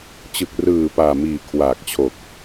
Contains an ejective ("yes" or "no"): no